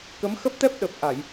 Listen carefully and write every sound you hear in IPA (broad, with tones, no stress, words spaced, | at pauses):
kə˨˦m xə˦˥p̚t̪ɛ˦˥p̚ ɗə˨˩p̚ʔa˧˩˨j